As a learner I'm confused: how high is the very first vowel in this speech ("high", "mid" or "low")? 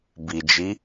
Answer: high